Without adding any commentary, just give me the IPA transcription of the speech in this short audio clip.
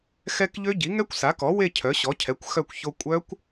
xɛ˦˥kʎø˦˥ ɟi˩˥ŋɛ˦˥kʷsa˩˥kɔ˩˥ we˥˧cʰœ˩˥ɕɔ˩˥cʰɛ˩˥kʷ xœ˥˧kʷço˦˥ kʷʼœ˦˥kʷ

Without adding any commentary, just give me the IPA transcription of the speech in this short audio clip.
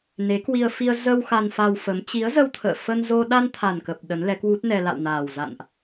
ne˨˦kwi˧ə̯ fi˧ə̯ zə˧w xa˧nfa˧wfə˨˦m t͡ɕi˨˦ə̯zə˧wt̪ʰə̰ː˧˨ fə˧nzo˧ ɗa˧nt̪ʰa˨˩nkə˨˩p̚ ɗə˨˦nlɛ˨˦kwu˦˥t̚nɛ˧ la̰˧˨wnaː˨˩wza̰˧˨nʔ

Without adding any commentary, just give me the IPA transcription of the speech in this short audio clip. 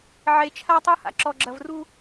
ʕe˨t͡ʃʰa˦tˤu˦ha̰˨ ǁɔ˨ɡ͡ǁɐ˨vru˦

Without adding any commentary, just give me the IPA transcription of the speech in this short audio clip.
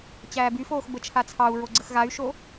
t͡ɕæːbyfoːx bət͡ʃʰat͡sʰɑu̯ ɹoɡ͡ǀəxɣay̯ʃo

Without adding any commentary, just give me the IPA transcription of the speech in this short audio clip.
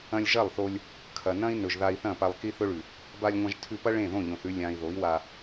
ɐ̃˧lʲʒɐ˦˨lˠθo˧lʲ | kʰɐ˨nɐ̃˦i̯ nɵ˨ʒða˧i̯θɐ̃˦˨ pa˧lˠki˦θɵ˦ɭʉ˨ | ba˧lʲŋʷɐ̃˧ʒtʰʉ˧pɐ˦ ɭẽ˦˨ðõ˦˨ ʎõ˨θʉ˧ lʲã˨i̯ ðo˨˦i̯wa˧

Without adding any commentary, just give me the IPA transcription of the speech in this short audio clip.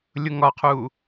lʲʊŋɒqʰuː

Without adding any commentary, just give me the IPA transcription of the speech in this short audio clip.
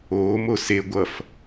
oːmo se ɡʷʌf

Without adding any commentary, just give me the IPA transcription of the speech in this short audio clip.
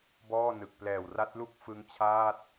bɔː˥˩nɯ˨˩k̚ plɛː˨˩wra˦˥t̚lu˥˩k̚ fɯ˦˥ŋt͡ɕʰaː˥˩t̚

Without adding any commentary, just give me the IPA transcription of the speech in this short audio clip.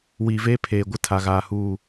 wiː˨veː˦pʰeː˨ɡʷɪ˦ tʰa˨ɣaː˨huː˦˨

